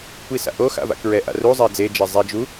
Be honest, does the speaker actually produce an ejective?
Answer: no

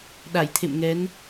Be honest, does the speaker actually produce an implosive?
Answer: yes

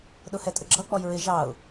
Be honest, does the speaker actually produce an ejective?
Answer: yes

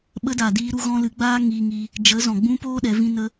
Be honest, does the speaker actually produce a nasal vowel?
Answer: yes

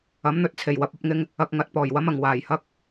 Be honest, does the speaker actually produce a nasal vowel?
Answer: no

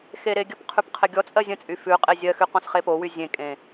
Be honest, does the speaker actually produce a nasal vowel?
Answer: yes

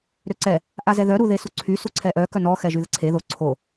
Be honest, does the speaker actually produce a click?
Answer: yes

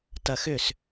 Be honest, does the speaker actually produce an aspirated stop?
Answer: no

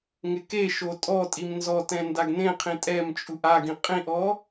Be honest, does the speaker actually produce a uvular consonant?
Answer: yes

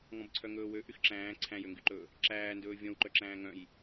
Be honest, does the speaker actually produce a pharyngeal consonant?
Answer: no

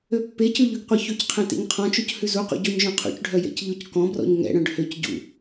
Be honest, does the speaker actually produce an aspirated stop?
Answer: yes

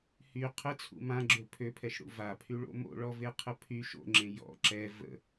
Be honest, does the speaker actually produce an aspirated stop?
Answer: yes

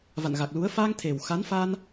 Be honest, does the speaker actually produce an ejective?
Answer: no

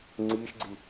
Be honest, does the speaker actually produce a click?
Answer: yes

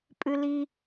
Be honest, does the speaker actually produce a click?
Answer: no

